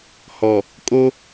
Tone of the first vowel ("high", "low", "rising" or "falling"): low